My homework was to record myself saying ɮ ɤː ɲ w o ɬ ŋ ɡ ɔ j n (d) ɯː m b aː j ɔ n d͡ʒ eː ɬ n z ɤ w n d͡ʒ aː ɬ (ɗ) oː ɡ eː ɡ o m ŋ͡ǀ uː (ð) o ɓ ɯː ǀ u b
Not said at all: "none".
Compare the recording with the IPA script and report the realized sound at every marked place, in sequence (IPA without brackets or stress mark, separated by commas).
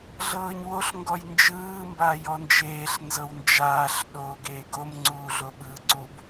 d͡ʒ, ɗ, ɮ